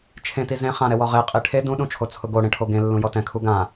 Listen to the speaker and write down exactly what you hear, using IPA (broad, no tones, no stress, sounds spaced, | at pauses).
t͡ʃʰ ẽ t i z ẽ χ ã ɾ ɛ w ɔ ʁ e qʼ i ʈʰ e d ũ ɗ ũ t͡ʃʰ o t͡sʰ ʊ ɡ o ɽ ẽ ʈʰ o ɡ ẽ lː ũ j ɔ t ɛ̃ kʰ u ɡ ã